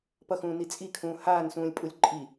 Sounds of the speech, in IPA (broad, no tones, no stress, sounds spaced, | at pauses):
p ʌ x ũː n i t͡sʼ i kʰ ũː h aː n s ũː lʲ pʼ u lʲ ǃʼ i